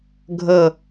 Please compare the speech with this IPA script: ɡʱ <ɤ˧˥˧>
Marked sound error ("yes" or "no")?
yes